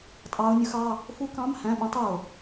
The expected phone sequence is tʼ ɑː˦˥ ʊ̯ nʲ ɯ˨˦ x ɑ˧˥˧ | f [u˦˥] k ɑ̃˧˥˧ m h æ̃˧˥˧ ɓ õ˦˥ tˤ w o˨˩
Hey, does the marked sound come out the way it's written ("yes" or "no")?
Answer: yes